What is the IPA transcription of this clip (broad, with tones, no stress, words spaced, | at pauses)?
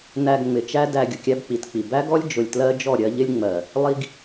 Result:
næ˧ɡŋ͡mɪ˨t͡ʃæ˦dæ˧ ɡʲʊ˨kʲæ˦bk͡pi˨tk͡pi˨ bæ˦ɡɔ˦lʲ d͡ʒʊ˨lʲtlɜ˦d͡ʒɔ˦˨ ɾʲɜ˦ ʎɪ˦lʲŋ͡mɜ˨ | lˠi˧ɡ